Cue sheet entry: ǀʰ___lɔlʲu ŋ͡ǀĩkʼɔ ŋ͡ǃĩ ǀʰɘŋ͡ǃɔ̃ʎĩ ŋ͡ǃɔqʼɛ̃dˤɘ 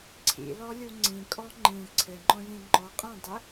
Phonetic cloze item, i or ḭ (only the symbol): ḭ